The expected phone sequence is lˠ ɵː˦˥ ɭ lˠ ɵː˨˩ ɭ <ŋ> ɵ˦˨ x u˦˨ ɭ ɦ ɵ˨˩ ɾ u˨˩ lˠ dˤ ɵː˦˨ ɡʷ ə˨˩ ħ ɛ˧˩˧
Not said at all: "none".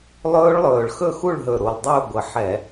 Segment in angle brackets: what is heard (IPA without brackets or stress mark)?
x